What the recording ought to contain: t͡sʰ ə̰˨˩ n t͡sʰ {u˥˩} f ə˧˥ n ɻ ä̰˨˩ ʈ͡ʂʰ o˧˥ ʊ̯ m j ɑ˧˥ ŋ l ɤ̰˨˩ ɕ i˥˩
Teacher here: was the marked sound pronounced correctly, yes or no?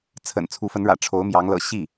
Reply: no